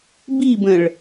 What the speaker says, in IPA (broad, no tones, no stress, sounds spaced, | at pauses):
b i b ə̃ ɭ